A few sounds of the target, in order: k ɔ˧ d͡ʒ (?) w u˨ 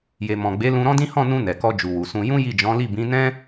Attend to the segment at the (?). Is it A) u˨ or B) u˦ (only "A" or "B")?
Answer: A